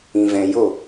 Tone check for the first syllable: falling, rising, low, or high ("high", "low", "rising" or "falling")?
low